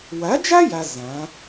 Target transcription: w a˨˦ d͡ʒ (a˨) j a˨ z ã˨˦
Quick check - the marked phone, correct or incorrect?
incorrect